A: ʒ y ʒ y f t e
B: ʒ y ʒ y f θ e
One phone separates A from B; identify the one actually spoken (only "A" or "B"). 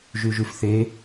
B